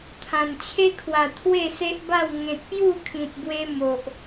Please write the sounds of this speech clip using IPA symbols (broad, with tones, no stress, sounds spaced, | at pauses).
t̪ʰ ã˨˩ n t͡ɕʰ e˦ kʰ w a˨˩ t̪ʰ w e˥˧ s e˦ ʔ b a˥˧ w ŋ ẽ˨ t̚ p j u˥˧ kʰ ĩ˨ t̚ b w e˧ m o˨ ʔ